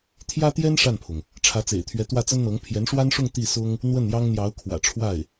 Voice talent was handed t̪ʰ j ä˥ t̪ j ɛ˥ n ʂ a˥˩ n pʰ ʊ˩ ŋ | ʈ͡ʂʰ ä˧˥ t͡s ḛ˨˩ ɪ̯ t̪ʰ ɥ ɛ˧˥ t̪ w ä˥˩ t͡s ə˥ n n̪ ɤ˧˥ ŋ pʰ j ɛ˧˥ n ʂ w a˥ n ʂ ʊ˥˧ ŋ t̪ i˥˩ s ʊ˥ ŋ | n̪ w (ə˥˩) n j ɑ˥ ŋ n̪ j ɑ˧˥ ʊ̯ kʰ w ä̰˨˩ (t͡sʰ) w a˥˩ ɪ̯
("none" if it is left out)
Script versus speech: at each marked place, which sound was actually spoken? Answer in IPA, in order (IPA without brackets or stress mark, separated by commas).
ə˥˩, ʈ͡ʂʰ